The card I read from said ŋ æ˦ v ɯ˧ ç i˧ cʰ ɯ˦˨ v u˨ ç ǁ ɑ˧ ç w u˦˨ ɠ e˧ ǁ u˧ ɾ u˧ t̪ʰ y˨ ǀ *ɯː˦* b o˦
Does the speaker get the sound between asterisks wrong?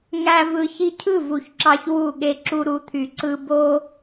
yes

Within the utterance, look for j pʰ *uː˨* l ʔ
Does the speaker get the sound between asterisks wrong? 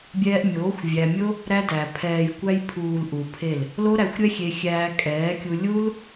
no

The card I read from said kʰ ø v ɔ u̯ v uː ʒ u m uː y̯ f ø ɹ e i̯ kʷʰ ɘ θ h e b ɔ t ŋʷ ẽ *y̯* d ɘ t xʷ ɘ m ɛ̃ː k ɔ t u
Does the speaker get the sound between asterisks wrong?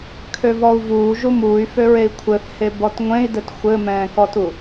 yes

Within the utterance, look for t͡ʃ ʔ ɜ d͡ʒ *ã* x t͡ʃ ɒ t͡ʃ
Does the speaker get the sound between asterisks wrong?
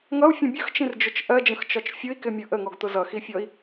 yes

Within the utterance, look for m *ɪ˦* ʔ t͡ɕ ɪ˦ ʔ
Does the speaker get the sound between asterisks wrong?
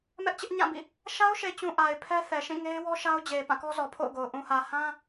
yes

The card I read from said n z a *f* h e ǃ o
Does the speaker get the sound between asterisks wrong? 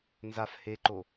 no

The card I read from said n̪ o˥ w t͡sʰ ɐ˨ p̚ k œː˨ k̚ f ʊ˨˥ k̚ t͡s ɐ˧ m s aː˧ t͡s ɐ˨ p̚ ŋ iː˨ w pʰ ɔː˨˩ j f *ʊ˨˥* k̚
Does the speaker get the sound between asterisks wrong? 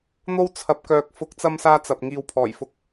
yes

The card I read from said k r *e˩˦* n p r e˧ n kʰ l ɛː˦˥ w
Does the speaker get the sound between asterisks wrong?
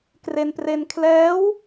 yes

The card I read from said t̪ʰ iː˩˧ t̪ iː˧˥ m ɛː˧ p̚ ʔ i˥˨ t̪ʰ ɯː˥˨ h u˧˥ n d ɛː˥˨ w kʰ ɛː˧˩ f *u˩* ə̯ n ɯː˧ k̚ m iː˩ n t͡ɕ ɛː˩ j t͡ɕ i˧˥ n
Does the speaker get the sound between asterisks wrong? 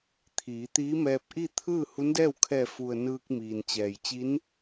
no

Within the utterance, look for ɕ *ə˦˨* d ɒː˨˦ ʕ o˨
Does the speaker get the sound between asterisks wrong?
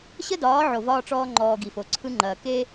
yes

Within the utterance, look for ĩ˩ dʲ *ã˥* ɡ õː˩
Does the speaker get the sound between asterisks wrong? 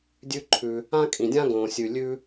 no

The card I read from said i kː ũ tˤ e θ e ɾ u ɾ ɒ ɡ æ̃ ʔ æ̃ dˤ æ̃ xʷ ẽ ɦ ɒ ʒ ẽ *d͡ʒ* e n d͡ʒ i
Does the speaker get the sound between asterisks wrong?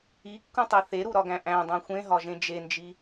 no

